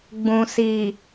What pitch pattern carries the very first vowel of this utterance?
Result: low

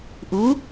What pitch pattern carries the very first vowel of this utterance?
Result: rising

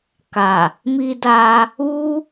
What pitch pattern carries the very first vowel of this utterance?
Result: low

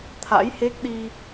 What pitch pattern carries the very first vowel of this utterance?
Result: rising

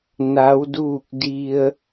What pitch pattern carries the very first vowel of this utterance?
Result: rising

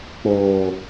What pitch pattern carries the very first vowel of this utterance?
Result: low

